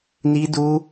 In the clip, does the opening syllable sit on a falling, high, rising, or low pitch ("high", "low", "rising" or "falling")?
high